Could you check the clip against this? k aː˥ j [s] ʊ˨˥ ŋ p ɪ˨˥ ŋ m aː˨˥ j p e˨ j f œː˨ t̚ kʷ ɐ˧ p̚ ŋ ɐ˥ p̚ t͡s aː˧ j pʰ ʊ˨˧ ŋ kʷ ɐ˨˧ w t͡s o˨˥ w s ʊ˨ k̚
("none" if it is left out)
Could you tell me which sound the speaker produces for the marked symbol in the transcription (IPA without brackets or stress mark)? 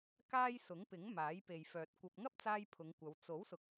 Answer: s